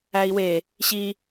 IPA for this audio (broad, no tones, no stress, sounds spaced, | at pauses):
æ i̯ w e | ɕ i